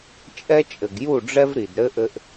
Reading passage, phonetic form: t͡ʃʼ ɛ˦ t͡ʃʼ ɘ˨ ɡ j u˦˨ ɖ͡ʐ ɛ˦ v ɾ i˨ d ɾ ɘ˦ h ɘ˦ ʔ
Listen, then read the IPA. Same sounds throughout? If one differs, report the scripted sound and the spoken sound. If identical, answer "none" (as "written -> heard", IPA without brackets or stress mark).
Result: h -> ʔ